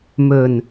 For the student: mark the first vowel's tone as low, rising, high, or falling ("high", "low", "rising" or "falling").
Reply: low